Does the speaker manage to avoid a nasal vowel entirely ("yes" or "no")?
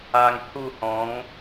no